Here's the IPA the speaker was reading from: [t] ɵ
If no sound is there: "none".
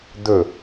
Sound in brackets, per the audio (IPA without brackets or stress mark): d̪